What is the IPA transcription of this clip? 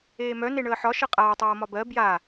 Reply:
eː m œ n e ɳ əː ħ ɒ ʃ ɤ qʼ aː tˤ ɤː m ɒ b ɜ b j a

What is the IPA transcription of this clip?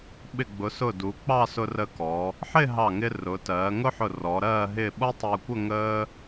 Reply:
ɓ ɪ˧˩ ɡ͡b ʊ˩˧ s ʊ˧˩ d u˩˧ k͡p ɑ˥˧ s ʊ˧ r ə˧ k ɔ˩˧ | ħ ɪ˥˧ ɦ ɑ˧˩ ŋ ɪ˧ r ʊ˩˧ t ɜː˩˧ ŋ ʊ˥ ħ ʊ˧˩ r ɔ˩˧ ɾ ɜː˥˧ ɦ ɪ˥˧ ɓ ʌ˥ tˤ əː˧ kʷ ə˥˧ ŋ əː˥

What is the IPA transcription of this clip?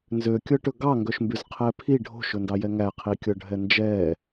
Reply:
n z ø kʲ ɔ ʈ ɵ ɡ ɑ ŋ ɡ œ ʃ m b y z qʰ ɛː pʰ i ɖʱ o̤ ʃ ɵ n d ɑ j ɛ ŋ æ qʰ i kʲ ɔ ɖʱ ɛ n d͡ʒ ɛː

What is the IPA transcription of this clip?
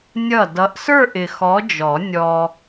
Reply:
nʲ ʌ˥˩ d ʌ˨˥ ʔ s ə˞˥˧ ʔ ɪ˨ x ɔ˨˥ d͡ʒ ɔ˨˩˦ nʲ ɔ˨

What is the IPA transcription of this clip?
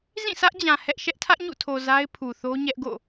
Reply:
z ĩ˦˨ sʰ ä˦ ʔ d͡ʑ ã˨ h ɛ˦ ʔ ʃ ɛ˦ ʔ tʰ ä˦ ʔ ɲ ṵ˦˨ tʰ o˨ z a˦ ɪ̯ pʰ u˨ θ o˦ ɲ ɛ˦ ʔ ɡ o̰˦˨

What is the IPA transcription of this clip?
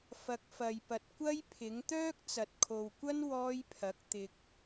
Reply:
f ɐ˨˥ k̚ f ɐ˨ j p ɐ˨ t̚ kʷ ɐ˥ j pʰ ɪ˨˥ ŋ t̪ œː˥ k̚ t͡s ɐ˨ t̚ kʰ o˨ w kʷ ɐ˥ n w ɔː˥ j pʰ ɐ˨˥ k̚ t̪ ɪ˨ k̚

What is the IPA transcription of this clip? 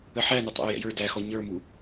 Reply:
ə ħ æ n ʊ tˤ æ̰ y̯ j ɛ̰ j ə˞ d æ x ɔ ɲ ə˞ m u

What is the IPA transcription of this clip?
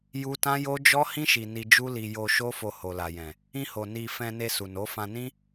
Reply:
j u˦ t ã˦ j o˦ d͡ʒ ɔ˦ h ĩ˦ ʃ i˧ n i˧ d͡ʒ u˦ l i˧ j o˧ ʃ o˦ f o˧ h o˨ l a˨ j ɛ̃˨ | ĩ˧ h o˨ n i˧ f ɛ̃˧ n e˧ s u˨ n o˨˦ f ã˧ n ĩ˦

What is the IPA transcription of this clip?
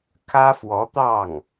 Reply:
kʰ ä˥ f w ɔ˧˥ t̪ ɑ˥˩ ŋ

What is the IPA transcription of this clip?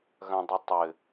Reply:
ɣ ɐ̃ dˤ ɛ tˤ ɘ

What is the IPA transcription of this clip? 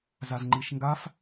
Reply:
z a z ŋ͡ǃ i ʃ ŋ ɡ a f

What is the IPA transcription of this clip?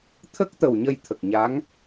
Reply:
t̪ʰ ə˦˥ k̚ t̪ ə˨˩ w ɲ ə˧ j t̪ʰ ə˨˩ k̚ ɲ a˧˥ ŋ

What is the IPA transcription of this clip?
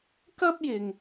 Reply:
k ɐ˥ p̚ j ɪ˨ ŋ

